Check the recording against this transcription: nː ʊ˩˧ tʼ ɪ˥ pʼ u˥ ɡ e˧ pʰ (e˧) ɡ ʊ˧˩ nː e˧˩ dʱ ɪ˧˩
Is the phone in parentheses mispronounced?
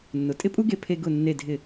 no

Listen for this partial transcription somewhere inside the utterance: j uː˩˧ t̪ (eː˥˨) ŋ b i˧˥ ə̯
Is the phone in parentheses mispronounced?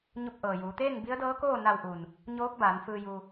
no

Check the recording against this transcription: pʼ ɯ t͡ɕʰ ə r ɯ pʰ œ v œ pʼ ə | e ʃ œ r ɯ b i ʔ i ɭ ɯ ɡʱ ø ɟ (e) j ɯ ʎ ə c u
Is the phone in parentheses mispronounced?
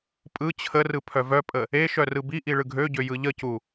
yes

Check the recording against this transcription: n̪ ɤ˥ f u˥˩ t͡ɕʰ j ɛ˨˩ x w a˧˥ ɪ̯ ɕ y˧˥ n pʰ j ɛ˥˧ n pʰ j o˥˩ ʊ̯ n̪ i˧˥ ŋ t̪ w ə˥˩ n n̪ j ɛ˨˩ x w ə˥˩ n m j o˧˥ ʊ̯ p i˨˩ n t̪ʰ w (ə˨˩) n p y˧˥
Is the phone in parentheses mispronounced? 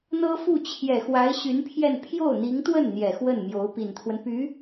yes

